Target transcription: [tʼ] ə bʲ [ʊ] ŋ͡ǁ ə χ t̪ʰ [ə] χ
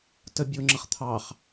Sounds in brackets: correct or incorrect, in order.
incorrect: t, correct, incorrect: ɑ

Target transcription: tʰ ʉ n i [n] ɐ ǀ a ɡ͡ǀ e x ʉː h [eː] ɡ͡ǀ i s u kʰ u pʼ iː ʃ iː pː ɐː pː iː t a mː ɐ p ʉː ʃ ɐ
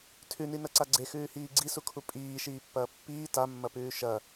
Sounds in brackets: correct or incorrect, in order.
correct, incorrect: iː

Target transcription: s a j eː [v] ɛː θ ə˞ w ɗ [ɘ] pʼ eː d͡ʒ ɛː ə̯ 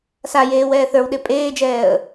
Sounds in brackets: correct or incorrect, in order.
incorrect: w, incorrect: e

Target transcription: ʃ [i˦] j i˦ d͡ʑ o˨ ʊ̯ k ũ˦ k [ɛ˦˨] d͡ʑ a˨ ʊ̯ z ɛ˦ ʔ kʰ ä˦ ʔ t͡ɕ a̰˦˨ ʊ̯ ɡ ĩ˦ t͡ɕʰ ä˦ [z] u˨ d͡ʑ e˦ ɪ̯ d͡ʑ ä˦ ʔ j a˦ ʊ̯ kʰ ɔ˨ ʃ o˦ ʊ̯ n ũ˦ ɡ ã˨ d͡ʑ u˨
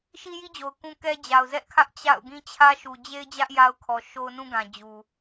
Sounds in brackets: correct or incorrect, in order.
correct, incorrect: ɛ˦, incorrect: ʃ

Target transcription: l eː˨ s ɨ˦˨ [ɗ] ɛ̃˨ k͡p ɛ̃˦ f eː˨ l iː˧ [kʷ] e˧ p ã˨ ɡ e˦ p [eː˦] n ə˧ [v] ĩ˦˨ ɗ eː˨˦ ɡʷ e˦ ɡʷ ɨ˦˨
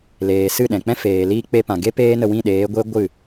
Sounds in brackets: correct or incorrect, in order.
correct, incorrect: k͡p, correct, incorrect: w

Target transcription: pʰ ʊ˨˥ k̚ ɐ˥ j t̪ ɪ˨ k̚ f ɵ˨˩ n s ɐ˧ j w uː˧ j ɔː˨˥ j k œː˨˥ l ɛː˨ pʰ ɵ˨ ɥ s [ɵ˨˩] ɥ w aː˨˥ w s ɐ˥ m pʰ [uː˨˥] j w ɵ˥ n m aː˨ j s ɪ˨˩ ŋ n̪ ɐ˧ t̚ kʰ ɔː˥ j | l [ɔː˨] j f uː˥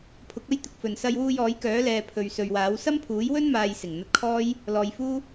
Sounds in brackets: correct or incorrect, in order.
incorrect: ɵ˨, correct, correct

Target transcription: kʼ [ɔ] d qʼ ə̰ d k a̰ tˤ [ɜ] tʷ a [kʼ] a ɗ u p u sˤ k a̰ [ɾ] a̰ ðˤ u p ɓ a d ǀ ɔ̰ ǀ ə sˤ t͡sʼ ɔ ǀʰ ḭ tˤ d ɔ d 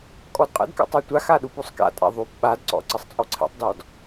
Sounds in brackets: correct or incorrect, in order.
correct, correct, incorrect: x, incorrect: tʼ

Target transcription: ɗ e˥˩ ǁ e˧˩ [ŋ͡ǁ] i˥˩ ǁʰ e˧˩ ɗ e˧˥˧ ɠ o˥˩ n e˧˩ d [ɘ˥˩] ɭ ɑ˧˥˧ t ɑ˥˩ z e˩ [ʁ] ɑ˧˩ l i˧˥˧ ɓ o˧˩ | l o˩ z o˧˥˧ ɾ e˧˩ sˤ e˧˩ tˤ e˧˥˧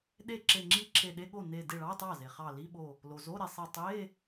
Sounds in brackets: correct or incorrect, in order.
correct, incorrect: e˥˩, incorrect: χ

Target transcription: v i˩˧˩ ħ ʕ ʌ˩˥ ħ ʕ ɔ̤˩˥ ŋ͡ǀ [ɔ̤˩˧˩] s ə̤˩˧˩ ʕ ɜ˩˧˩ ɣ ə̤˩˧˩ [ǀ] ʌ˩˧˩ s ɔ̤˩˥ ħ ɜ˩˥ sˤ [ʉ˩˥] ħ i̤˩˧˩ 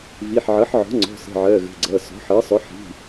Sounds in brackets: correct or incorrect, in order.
correct, incorrect: ɡ͡ǀ, incorrect: ʊ˩˥

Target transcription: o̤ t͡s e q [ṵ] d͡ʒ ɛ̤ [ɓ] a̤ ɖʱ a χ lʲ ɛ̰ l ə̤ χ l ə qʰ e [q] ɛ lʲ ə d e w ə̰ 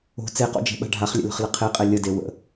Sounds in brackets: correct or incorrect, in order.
incorrect: o̰, correct, incorrect: qʼ

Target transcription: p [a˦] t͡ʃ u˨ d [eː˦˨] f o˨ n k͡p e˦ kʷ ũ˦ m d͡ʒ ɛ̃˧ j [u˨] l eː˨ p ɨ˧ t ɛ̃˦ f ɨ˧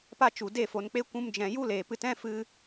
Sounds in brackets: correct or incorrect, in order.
correct, incorrect: e˦˨, incorrect: u˦

